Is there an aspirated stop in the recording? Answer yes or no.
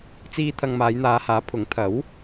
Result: yes